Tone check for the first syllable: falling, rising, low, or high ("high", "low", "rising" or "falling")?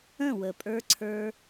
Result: falling